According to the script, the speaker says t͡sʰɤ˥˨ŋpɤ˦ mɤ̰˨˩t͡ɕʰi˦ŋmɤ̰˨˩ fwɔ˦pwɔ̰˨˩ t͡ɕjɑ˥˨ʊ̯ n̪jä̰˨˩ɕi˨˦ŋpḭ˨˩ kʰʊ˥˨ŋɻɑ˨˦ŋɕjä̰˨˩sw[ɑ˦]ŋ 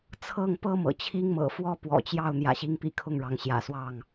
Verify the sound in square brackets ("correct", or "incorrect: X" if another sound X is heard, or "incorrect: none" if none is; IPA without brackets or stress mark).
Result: incorrect: ɑ˥˨